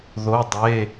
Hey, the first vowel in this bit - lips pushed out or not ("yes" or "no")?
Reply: yes